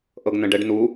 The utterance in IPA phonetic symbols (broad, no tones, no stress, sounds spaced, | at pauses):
ʔ ɤ ɡ n ə̃ ɖ ɛ ɖ n u